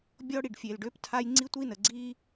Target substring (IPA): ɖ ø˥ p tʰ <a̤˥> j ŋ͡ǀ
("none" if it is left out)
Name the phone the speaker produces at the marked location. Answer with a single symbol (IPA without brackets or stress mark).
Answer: a˥